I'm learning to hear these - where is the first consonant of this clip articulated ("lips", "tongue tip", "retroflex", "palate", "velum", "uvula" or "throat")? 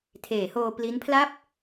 tongue tip